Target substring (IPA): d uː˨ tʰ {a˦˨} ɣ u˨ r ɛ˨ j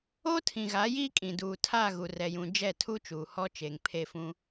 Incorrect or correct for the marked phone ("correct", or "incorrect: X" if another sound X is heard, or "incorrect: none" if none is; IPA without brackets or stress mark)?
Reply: correct